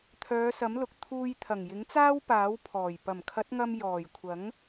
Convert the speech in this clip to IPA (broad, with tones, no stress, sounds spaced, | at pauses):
t̪ʰ œː˨˧ s ɐ˨˥ m l ʊ˨ k̚ t̪ʰ uː˧ j t̪ʰ ɐ˨˩ ŋ j ɪ˨˥ ŋ t͡s aː˥ w p aː˨˥ w pʰ ɔː˨˩ j p ɐ˨˩ m kʰ ɐ˨˥ t̚ ŋ ɐ˧ m j ɔː˨˩ j kʷʰ ɐ˨˥ ŋ